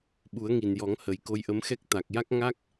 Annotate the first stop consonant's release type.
implosive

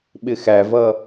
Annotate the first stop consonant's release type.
implosive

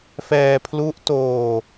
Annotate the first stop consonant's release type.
aspirated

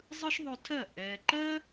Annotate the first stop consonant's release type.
aspirated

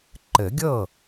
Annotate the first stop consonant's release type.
click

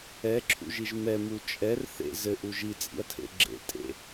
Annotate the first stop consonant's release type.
click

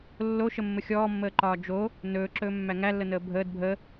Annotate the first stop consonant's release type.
click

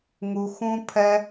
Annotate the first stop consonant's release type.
aspirated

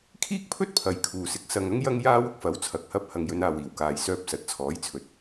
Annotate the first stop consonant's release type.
aspirated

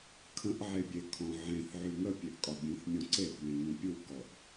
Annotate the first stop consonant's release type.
aspirated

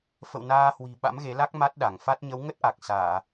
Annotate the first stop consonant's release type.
implosive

